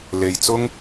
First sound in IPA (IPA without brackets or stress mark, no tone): l